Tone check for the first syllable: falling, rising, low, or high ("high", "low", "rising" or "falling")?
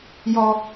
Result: high